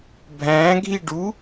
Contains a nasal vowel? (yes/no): yes